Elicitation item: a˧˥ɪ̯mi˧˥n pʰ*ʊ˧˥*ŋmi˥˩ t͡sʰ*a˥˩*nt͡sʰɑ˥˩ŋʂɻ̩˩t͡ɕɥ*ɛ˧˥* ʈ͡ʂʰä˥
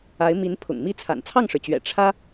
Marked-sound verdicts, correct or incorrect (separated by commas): incorrect, incorrect, incorrect